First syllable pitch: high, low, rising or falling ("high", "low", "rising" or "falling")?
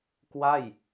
falling